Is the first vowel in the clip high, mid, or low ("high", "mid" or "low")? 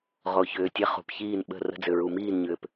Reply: mid